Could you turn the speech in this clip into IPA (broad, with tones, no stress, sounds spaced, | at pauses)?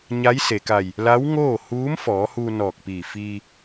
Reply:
ɲ a˧˥ j s e˩ k a˧˩ j | l a˧˥ w ŋ oː˥˨ h uː˧˥ m f ɔː˩˧ h uː˧ n ɔː˧˩ k̚ p iː˧˩ f iː˧